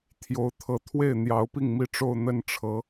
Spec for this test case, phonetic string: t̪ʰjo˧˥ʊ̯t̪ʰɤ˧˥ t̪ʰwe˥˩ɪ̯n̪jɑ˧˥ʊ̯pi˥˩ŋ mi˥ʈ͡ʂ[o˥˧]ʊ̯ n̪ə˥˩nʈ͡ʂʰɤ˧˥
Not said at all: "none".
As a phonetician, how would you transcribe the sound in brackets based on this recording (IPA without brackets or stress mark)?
o˥˧